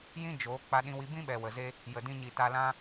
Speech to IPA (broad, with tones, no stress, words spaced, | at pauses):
jĩ˦ d͡ʒoː˨˦ k͡pa˧ɗĩ˧wi˧ bĩ˦ɓɛ˨wə˨ze˧ | jə˨dĩ˧ ɲi˨ ta˧lã˦